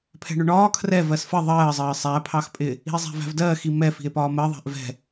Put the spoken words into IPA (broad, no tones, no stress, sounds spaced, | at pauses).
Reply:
pʰ ɛ̤ ɳ ʊ ɳ ɒː kʰ r ɛ v ɜ s f ɜ ðˤ ɜː zˤ ɜː sˤ æ pʰ ɑ x pʼ ɪ | i̤ e̯ zˤ æ̤ v æ̤ v d ɜː x i m ɛ f i̤ e̯ p ɒː m ɜ ðˤ ɛ̤ ʔ v ɛ̤